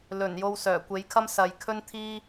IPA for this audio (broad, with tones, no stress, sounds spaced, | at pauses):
l ɵ˨˩ n j o˧ w s œː˨˩ kʷ e˨˥ j kʰ ɐ˥ m s ɐ˨ j kʰ ɵ˥ n t̪ʰ iː˥